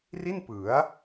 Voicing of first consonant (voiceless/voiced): voiced